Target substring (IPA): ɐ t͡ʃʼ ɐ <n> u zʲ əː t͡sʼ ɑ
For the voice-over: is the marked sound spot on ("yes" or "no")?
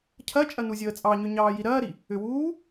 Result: yes